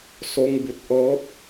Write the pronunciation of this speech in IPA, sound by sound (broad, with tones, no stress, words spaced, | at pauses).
so˧ŋbu˧˩t̚ ʔɤː˧˥p̚